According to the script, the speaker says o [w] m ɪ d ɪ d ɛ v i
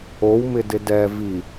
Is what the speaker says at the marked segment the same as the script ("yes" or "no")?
yes